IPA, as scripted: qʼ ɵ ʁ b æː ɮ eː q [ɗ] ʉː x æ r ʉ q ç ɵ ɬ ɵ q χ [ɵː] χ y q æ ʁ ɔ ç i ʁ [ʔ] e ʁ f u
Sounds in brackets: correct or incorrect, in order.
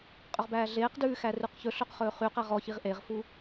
incorrect, correct, correct

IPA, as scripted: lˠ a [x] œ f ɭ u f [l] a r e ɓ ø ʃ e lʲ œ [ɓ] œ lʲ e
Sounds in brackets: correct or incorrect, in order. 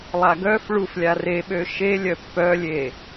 incorrect, incorrect, incorrect

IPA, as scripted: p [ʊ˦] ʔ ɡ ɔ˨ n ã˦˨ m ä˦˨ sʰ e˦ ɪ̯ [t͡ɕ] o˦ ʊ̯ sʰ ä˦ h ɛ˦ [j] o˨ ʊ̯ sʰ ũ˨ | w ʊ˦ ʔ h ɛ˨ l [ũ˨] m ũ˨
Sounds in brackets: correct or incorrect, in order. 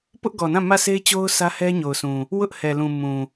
correct, correct, incorrect, correct

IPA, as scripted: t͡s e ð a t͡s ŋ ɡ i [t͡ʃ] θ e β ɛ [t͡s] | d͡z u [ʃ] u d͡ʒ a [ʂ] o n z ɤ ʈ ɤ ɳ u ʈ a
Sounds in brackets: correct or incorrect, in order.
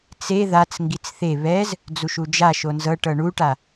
incorrect, incorrect, correct, incorrect

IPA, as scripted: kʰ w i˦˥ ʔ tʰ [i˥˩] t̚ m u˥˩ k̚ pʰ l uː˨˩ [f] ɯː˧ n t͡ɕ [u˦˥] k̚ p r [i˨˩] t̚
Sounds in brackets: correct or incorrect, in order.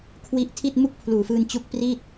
correct, correct, correct, incorrect

